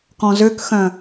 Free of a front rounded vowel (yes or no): no